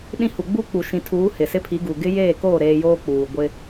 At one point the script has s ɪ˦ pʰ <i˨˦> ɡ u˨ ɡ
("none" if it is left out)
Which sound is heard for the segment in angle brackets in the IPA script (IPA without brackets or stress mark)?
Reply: i˨˦